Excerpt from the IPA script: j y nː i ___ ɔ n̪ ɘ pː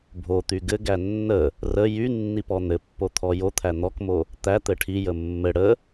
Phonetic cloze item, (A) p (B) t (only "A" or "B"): A